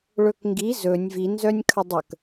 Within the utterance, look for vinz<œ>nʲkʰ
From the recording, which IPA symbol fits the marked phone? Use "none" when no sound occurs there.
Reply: œ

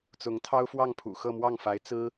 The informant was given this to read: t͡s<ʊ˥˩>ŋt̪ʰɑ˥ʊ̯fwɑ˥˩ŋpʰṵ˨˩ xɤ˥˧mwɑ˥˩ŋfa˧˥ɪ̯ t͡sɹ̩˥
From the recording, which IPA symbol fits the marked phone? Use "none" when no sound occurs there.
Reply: ʊ˧˥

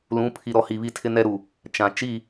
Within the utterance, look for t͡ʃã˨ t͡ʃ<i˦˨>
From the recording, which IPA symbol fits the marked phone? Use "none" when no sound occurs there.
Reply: i˦˨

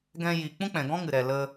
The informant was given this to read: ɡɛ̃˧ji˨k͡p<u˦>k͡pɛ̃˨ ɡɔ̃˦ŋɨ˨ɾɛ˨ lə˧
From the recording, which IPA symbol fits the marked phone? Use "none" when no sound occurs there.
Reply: ũ˦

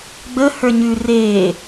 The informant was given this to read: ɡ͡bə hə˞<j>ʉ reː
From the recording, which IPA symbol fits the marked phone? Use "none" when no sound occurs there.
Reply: ɲ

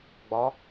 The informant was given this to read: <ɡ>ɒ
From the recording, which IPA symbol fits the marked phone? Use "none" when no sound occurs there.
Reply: ɡ͡b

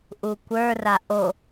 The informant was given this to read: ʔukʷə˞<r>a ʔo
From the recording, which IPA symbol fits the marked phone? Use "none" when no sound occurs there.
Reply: r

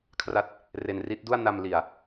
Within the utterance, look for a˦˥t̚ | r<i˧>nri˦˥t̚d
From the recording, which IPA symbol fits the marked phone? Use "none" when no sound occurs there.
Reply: e˧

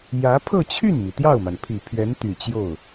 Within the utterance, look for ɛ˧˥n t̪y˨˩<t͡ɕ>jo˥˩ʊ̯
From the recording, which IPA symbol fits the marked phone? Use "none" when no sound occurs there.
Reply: t͡ɕ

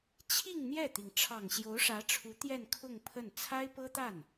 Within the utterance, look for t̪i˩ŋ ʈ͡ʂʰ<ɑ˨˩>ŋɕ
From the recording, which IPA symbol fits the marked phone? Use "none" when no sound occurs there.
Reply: ɑ˨˩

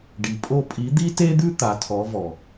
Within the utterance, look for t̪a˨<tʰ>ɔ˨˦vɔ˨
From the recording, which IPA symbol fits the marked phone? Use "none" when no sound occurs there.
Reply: tʰ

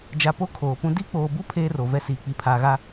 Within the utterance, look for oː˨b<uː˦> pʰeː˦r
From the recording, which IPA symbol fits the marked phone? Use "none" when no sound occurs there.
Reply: u˦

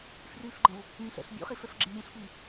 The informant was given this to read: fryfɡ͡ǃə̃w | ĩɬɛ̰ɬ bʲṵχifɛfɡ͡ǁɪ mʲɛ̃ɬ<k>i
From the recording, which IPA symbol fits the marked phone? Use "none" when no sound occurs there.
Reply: x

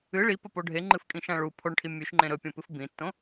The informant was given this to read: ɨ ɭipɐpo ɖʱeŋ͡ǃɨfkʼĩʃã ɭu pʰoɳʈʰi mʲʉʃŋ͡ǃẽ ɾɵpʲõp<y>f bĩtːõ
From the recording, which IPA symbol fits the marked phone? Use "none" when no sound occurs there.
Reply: ɨ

